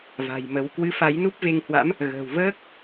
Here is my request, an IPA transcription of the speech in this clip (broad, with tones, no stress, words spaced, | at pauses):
va̤˨˩jmə˨˦w kwɨ˨˦ fa˨˦jnu˦˥p̚ve˧ŋhwa̰˧˥m | ɣə̤ː˨˩wvəː˦˥k̚